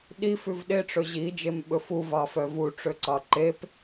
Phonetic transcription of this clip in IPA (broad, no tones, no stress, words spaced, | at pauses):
ɗi fʉvɗeʈ͡ʂɵ ʑi d͡ʒemɓɵfu vɑfœvuʈ͡ʂø ǀɑǃep